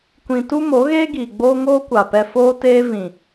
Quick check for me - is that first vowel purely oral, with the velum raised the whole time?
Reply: no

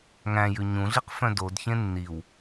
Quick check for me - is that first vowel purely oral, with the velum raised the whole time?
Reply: no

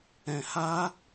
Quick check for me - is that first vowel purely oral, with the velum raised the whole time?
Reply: no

